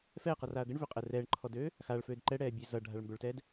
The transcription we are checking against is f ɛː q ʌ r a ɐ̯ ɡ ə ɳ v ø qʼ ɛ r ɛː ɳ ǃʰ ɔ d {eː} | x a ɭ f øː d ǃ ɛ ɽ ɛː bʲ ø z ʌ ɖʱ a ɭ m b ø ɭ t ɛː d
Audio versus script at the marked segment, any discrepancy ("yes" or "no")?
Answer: yes